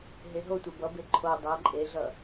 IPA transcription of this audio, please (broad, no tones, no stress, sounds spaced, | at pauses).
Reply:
ɦ e ɦ o tʷ e b ʌ b e ǃʰ o dˤ ʌ ǃʼ e ɮ ʌ